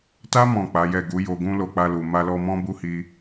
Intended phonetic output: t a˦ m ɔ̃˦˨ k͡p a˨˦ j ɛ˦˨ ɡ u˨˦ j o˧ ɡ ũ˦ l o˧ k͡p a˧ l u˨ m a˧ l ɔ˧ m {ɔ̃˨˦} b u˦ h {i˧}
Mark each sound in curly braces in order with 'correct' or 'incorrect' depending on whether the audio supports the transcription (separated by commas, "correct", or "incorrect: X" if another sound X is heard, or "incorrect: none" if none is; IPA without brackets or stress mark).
incorrect: ɔ̃˦, correct